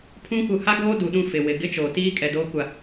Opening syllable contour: high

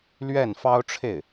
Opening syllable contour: falling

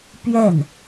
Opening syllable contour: falling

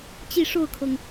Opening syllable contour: falling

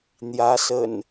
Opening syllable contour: rising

